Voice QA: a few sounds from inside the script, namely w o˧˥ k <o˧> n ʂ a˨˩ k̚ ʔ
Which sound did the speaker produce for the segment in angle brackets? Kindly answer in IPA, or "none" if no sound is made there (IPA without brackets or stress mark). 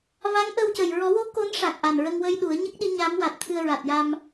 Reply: o˧˥